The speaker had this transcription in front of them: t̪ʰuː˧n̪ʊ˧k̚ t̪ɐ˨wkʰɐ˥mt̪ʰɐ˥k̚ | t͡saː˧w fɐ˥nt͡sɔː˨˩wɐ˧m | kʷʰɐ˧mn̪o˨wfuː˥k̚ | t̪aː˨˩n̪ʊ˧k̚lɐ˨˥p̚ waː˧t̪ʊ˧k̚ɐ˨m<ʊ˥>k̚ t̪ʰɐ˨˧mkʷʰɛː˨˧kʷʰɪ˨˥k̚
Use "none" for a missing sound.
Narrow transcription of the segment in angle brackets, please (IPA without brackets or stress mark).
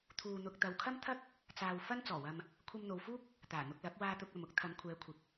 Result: ʊ˥